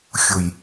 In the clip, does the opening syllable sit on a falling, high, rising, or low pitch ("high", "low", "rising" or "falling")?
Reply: low